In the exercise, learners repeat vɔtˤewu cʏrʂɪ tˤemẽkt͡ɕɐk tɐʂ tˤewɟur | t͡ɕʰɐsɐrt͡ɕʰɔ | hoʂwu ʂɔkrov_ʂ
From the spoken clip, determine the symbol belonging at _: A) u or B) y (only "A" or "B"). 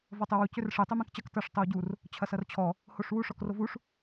A